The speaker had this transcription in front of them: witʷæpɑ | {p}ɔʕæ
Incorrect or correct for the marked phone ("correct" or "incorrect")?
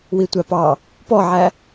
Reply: correct